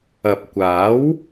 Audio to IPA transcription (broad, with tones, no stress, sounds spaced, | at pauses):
ɐ˨ p̚ kʷ aː˨˥ w